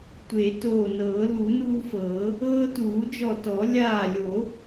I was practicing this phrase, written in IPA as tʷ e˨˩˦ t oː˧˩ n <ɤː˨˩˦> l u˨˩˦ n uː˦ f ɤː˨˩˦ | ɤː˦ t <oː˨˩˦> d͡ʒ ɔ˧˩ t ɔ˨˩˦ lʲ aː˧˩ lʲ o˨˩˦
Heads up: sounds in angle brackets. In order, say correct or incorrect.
correct, incorrect

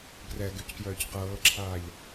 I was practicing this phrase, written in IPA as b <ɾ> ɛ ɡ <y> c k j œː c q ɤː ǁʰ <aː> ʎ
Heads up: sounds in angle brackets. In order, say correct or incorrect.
incorrect, correct, correct

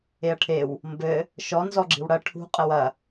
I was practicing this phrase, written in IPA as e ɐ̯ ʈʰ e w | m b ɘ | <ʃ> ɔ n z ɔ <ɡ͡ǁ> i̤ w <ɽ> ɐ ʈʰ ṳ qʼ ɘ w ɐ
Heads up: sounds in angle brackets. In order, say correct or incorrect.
correct, correct, correct

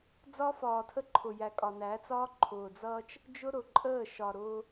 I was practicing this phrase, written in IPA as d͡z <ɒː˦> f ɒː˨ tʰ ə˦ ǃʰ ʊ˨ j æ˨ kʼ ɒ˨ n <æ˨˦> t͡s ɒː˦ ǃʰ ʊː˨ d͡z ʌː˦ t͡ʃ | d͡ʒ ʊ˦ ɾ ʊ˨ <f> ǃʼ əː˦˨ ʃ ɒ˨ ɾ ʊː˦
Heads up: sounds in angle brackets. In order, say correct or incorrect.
incorrect, correct, incorrect

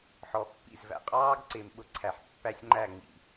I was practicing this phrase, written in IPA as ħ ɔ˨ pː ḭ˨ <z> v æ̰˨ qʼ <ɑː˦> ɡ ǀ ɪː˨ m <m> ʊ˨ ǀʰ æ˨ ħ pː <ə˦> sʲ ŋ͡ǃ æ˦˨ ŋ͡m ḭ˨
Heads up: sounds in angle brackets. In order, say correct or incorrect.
correct, correct, incorrect, incorrect

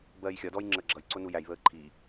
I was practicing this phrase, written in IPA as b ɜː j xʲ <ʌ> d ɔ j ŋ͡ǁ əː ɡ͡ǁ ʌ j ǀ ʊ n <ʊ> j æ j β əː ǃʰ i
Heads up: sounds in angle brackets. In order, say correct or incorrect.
incorrect, incorrect

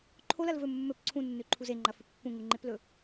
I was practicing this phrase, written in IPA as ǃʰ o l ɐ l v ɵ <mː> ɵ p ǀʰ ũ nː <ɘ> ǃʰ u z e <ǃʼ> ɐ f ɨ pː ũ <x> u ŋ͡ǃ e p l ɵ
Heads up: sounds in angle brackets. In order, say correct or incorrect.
correct, incorrect, incorrect, incorrect

